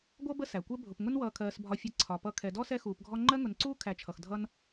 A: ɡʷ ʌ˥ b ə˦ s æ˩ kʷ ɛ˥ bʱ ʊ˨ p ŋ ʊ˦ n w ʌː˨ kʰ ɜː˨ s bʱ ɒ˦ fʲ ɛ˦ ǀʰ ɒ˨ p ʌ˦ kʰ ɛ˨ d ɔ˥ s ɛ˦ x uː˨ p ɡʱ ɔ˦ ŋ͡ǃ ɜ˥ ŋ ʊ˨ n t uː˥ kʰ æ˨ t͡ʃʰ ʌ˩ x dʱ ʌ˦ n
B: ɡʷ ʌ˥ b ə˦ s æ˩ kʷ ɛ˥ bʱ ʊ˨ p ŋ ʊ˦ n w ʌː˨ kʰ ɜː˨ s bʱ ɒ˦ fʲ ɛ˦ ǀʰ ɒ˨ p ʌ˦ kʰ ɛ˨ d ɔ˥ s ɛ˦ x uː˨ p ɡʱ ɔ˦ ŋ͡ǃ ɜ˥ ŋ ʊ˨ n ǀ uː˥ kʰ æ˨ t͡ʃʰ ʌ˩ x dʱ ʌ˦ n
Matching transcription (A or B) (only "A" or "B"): B